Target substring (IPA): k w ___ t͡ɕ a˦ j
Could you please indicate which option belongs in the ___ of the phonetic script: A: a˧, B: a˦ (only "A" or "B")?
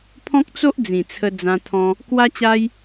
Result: B